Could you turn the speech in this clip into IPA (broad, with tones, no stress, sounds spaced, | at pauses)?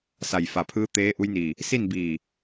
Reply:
s a˧˩ j f a˧˩ pʰ ɯː˧˥ t̪ eː˧˥ ʔ u˧˥ j n iː˧˩ | s i˥˨ n b iː˧˩